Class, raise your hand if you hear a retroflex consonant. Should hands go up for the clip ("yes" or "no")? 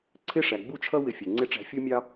yes